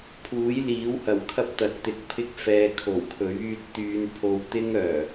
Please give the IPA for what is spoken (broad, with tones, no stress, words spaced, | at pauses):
pʰuː˨˥jliː˨˥whɐ˨˩w kʰɐ˥p̚t̪ɐ˨t̚t̪ɪ˧k̚pʰɪ˥k̚ fɛː˧kʰo˨˩wkʰɵ˨˥ɥyː˥t̚ t̪yː˧npʰo˧w t̪ɪ˥ŋœː˨˩